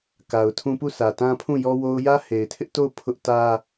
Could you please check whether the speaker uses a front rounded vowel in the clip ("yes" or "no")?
no